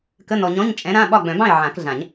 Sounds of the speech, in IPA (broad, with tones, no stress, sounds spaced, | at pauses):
k ə˧˥˧ n ɔ˨ ɲ ɔ̃˧˥˧ ɲ t͡ʃʼ ɛ̃˨˥ ɾ ã˧˥˧ ɓ ɒ˥˨ ɡ͡b œ̃˨˩˦ b ɑ̃˥˨ ɪ̯ ʕ ã˨˩˦ k ɮ ã˨˩˦ ɲ